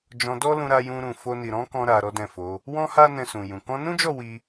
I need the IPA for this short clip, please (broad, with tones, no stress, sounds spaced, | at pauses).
d͡ʒ ɔ̃˧ d ɔ˦ l ũ˧ ɾ a˧ j ũ˧ ɾ ũ˨ f o˧ n i˨ ɾ ɔ̃˨˦ k ɔ̃˧ ɾ a˧ ɾ ɔ˦ d ɛ̃˦˨ f o˨˦ | w ɔ̃˦ h a˦ n ɛ̃˧ s ũ˨ j ũ˨ k ɔ̃˧ n ũ˦ d͡ʒ ɔ˦˨ w i˧